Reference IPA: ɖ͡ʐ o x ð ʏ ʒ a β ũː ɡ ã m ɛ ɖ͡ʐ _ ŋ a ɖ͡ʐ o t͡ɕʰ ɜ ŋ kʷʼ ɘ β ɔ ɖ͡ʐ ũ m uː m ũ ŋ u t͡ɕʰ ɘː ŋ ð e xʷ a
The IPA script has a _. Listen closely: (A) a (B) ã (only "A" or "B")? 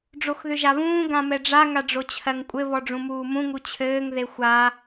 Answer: A